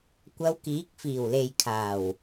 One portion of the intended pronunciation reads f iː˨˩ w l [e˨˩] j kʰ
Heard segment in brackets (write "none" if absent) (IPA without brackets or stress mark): e˨